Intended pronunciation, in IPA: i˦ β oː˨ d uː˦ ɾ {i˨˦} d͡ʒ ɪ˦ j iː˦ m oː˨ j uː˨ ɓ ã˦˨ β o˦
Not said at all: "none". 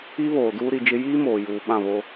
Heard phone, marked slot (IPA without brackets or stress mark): i˨˦